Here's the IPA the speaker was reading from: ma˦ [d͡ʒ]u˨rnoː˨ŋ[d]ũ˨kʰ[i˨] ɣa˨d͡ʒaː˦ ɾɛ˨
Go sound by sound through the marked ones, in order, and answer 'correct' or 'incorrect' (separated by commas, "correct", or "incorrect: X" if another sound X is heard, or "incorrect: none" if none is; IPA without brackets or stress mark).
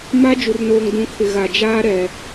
correct, correct, incorrect: ɪ˨